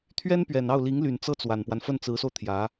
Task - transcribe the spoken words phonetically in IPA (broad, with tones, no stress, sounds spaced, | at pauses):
t̪ʰ ɥ ɛ˥ n p ɥ ɛ˨˩ n ɑ˥˩ ʊ̯ l i˧˥ ŋ l y˨˩ n t͡s ɤ˥˩ t͡s w a˨˩ n p w a˦ n f ə˥˩ n t͡s ɹ̩˧˥ s o˧ ʊ̯ t̪ʰ j ä˧˥